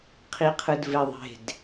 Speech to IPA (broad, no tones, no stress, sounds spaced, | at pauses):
qʰ i qʰ ɯ d v e ðˤ e̤ d